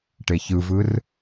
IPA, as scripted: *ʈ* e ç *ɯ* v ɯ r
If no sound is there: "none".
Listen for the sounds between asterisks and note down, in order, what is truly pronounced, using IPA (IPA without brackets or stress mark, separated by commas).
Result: ʈ, ɯ